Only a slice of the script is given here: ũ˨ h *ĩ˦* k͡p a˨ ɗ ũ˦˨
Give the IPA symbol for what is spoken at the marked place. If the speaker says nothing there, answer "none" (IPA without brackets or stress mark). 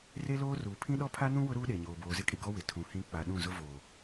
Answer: ĩ˦